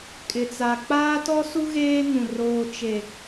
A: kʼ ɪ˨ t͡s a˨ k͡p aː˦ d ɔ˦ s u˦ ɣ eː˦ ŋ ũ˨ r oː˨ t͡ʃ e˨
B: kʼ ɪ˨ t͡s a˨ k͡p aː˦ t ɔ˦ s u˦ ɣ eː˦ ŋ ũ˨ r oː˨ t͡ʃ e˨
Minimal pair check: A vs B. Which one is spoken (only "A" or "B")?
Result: B